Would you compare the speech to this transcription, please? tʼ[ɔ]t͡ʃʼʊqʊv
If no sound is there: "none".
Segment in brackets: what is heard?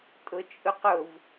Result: ʊ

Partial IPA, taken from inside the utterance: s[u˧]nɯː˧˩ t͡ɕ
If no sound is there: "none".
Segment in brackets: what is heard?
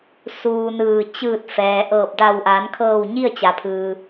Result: uː˧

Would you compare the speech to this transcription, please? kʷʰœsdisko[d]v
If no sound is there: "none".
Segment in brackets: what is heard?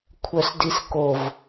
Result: none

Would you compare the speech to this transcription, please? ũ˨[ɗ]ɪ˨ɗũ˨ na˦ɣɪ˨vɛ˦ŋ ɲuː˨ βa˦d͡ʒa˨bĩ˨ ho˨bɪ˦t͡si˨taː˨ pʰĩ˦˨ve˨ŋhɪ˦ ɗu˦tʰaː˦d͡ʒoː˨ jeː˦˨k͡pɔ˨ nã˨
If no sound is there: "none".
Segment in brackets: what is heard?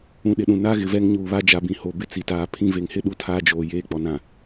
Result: ɗ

